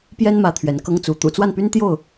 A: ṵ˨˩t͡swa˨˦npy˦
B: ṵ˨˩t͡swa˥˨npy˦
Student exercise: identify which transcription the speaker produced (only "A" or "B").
B